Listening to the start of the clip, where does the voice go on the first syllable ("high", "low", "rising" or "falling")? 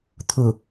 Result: low